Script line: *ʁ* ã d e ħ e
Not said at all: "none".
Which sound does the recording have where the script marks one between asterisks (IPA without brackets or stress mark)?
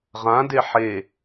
ʁ